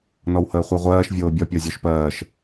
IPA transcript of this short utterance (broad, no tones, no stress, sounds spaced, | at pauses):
n ɔ w h əː χʷ ɜ ʁʷ ɜː ʃ vʲ oː bʲ ɒ pʲ ɔ zʲ ɔ ʃ p ɜː ʃ